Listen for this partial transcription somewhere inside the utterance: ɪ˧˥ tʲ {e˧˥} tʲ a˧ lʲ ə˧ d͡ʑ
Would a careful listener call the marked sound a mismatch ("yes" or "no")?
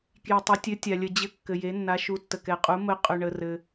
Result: yes